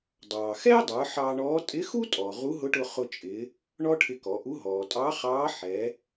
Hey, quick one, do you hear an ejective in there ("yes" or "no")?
yes